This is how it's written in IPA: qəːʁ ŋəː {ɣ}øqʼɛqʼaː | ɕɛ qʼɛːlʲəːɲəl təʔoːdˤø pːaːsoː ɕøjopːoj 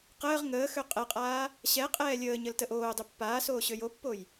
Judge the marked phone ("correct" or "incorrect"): incorrect